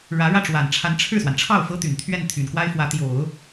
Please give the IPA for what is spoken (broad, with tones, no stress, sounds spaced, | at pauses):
ɻ ä˧˥ ɻ ä˥˩ ʈ͡ʂ w a˨˩ n ʈ͡ʂʰ a˧˥ n ʈ͡ʂʰ ɻ̩˥˩ s w a˩ n ʈ͡ʂʰ ɑ˥˩ ʊ̯ f ɤ˥ t̪ y˨˩ n t̪ʰ ɥ ɛ˥˩ n t̪ʰ y˨˩ n k w a˥ ɪ̯ f w ä˧˥ t̪ j o˨˩˦ ʊ̯